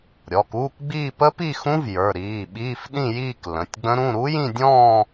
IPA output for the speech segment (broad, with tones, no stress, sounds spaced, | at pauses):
ɾʲ ɔ˩˧˩ k uː˧˥˧ k ɡ͡b iː˥˧ p ə˦˥ p i˥˧ x ũ˦˥ v j ə˞˩˧˩ ɾ iː˩˧˩ ɓ iː˧˥˧ f ɗ ĩ˥˧ j iː˥˧ k l ə̃˩˧˩ tʲ ɡ͡b ə̃˦˥ ɾ ũ˧˥˧ ɾ u˦˥ j ĩ˥˧ dʲ ɔ̃ː˥˧